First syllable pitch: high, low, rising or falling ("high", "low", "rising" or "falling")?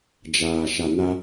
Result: low